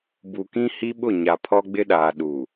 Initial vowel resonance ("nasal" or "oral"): oral